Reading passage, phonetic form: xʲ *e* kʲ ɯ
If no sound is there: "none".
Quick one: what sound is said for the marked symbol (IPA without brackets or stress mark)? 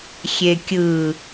e